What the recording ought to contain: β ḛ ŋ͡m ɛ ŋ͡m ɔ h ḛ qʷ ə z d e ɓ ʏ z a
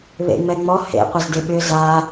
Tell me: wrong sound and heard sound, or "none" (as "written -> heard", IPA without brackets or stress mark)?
none